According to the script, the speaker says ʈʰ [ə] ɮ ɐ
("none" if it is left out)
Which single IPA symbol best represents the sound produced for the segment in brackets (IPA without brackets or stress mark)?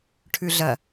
ʉ